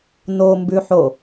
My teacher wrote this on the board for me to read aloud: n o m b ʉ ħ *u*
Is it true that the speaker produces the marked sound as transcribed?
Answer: no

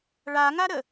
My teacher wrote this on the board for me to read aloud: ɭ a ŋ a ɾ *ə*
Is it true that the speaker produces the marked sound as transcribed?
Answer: yes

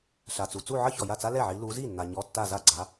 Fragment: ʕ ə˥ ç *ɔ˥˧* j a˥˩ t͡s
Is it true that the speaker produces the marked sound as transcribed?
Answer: no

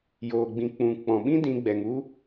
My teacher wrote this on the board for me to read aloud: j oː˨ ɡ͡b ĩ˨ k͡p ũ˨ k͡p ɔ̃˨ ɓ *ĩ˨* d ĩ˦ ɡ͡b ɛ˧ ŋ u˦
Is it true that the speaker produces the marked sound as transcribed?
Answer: no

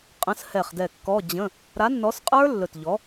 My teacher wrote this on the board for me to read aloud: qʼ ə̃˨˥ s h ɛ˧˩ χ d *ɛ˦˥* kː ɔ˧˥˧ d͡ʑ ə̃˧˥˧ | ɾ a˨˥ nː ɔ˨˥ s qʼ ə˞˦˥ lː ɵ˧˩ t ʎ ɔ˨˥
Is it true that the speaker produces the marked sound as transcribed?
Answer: no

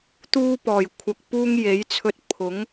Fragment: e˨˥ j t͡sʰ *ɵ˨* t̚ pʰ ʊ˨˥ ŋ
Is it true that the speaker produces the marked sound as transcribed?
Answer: no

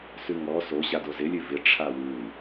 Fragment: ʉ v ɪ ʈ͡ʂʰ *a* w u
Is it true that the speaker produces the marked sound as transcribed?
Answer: yes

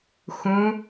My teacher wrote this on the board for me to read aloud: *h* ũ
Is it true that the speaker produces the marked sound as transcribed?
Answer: no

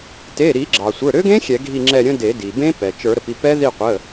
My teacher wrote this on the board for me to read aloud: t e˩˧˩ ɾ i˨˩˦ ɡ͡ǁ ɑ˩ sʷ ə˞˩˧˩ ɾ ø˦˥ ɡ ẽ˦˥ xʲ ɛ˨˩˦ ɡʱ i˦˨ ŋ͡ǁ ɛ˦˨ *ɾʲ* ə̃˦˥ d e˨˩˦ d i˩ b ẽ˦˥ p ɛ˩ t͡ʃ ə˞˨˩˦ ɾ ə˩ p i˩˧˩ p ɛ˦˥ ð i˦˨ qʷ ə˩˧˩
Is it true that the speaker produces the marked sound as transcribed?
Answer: yes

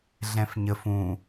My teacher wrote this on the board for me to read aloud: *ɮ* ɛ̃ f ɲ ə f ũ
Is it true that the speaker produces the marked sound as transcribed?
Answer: yes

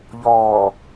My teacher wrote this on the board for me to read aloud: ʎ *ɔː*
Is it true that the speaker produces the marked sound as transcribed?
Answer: yes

